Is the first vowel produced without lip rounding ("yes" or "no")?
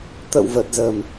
yes